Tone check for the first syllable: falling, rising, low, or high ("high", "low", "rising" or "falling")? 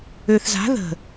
low